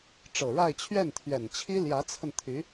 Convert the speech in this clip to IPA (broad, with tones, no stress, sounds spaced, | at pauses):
ʈ͡ʂ ɤ˨˩ ɻ a˥˧ ɪ̯ t͡ɕʰ ɥ ɛ˥˩ n t̪ʰ ɥ ɛ˨˩ n t͡ɕʰ i˥ l j ä˧˥ t͡sʰ ə˧ n t̪ʰ y˧˥